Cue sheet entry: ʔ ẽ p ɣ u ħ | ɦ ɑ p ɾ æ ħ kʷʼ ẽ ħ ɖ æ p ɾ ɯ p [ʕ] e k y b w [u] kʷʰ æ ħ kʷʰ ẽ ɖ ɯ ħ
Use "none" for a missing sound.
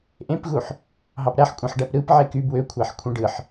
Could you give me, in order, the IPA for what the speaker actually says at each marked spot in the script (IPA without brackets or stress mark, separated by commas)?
ʕ, ø